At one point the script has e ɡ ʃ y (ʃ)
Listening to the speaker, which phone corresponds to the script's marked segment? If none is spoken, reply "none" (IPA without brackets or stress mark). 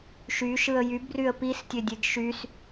s